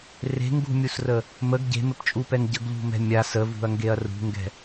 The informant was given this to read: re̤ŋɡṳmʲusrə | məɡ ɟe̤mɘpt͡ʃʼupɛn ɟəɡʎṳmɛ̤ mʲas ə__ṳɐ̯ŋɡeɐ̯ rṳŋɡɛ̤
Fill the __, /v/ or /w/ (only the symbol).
v